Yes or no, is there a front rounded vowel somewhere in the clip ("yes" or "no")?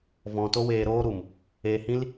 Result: no